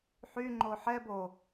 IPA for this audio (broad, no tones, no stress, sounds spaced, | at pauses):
ħ y ŋ͡ǃ o ħ ɛ b o